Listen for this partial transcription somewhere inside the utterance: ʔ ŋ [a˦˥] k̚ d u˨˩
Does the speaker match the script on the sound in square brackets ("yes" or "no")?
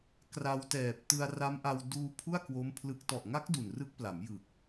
yes